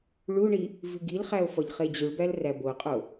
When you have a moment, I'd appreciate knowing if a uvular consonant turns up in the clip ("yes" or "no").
yes